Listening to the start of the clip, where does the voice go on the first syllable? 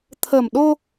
low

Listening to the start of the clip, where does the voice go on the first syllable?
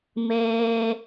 high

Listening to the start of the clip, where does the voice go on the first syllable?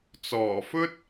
low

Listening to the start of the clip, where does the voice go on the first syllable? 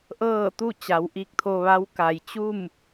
falling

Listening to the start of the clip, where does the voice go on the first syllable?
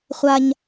high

